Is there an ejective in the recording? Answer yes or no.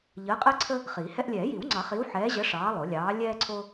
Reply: yes